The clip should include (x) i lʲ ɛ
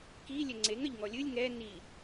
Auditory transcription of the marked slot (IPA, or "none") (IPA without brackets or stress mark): k